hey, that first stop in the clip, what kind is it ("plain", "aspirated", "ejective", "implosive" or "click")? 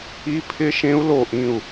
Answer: aspirated